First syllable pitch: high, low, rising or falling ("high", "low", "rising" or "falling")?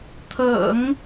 low